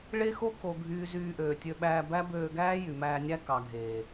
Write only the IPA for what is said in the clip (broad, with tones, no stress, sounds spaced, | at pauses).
ɭ e˦ x o˦ k o˨ ɡʱ yː˨ z yː˧ ʔ øː˨ tʲ ø˧ ɓ æː˧ b æ˦ b øː˧ ɡ æː˦ j y˨ m æː˧ nʲ æ˦ k ɑ˨ ɡʱ eː˨